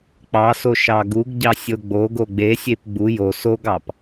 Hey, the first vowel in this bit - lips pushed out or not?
no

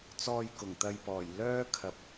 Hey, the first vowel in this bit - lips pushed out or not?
yes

